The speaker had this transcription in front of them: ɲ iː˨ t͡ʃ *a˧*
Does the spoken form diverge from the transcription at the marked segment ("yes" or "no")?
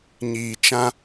yes